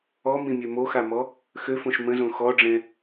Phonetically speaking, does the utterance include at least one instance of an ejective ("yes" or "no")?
no